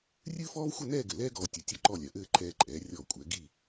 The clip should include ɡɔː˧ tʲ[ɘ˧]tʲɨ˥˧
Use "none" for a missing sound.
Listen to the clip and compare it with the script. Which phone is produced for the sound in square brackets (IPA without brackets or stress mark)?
ɘ˧